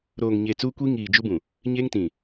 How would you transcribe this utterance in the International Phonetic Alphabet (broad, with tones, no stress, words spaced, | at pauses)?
ɾoː˨ŋɲe˨ t͡suː˦kʷi˦ ŋiː˨d͡ʒu˦bũ˨ | ɲe˦ŋtĩ˨